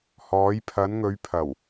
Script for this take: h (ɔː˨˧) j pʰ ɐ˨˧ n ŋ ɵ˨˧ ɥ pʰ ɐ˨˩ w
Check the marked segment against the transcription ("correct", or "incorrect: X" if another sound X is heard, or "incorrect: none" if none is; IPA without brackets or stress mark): correct